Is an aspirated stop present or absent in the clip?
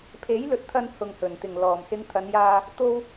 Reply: present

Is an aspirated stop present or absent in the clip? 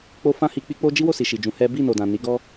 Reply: absent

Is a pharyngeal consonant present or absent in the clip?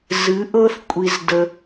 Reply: absent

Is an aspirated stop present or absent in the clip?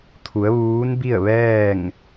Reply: present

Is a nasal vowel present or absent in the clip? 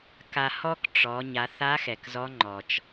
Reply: absent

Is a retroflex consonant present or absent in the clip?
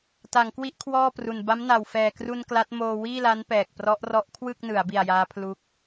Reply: absent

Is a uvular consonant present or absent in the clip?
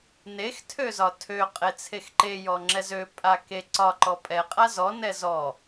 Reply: present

